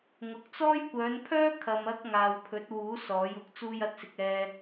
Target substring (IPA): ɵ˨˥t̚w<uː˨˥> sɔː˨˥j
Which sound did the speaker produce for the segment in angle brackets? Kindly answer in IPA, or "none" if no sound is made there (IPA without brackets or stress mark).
uː˨˥